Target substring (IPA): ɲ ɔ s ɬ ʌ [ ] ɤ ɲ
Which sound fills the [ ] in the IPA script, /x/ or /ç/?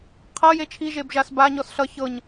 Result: ç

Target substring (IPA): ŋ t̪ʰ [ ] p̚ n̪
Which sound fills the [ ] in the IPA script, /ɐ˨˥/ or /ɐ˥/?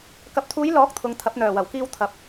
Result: ɐ˨˥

